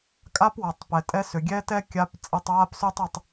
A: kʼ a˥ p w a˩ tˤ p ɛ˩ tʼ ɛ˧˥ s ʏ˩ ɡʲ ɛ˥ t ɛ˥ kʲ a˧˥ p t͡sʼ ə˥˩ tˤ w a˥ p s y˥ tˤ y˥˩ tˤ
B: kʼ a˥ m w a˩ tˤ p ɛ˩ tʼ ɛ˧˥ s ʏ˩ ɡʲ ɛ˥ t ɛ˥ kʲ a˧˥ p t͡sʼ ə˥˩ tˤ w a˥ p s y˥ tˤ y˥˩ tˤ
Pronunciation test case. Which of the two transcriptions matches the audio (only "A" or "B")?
A